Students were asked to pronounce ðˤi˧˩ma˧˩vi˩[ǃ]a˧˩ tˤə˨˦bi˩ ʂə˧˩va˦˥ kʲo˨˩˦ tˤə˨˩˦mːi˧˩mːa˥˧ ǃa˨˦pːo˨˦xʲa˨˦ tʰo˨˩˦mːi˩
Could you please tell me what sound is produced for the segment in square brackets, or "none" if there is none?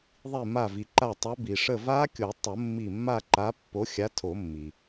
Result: ǃ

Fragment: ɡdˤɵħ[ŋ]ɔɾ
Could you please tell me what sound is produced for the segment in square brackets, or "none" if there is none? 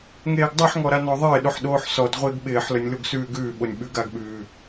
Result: ŋ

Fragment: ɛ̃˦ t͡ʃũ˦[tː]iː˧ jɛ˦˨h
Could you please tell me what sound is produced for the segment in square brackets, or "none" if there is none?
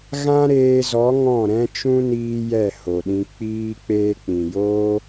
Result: n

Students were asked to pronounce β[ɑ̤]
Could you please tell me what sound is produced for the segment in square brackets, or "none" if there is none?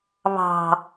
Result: ɑ̤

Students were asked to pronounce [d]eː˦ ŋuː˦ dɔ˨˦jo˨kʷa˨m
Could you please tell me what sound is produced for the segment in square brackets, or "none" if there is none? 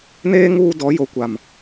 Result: n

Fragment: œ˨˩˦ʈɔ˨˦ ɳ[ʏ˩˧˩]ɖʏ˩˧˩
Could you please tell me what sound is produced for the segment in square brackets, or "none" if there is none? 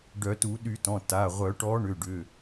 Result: ʏ˩˧˩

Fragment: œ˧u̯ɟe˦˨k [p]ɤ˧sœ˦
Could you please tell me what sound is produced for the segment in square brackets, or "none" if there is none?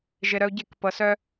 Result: p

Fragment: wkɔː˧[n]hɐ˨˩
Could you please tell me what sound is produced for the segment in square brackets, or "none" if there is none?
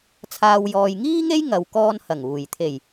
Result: n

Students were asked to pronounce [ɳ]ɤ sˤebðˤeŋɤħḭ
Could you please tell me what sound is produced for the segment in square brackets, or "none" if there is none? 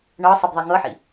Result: ɳ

